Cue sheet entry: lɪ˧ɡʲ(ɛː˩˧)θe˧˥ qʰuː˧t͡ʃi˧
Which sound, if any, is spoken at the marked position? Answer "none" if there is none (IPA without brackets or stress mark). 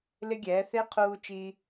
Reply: ɛː˩˧